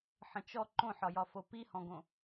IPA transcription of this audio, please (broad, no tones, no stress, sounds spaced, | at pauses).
ħ ə̃ t͡ʃ ɔ ǃ õ ħ ɒ j ɒ f o p i h ɔ̃ ɡ õ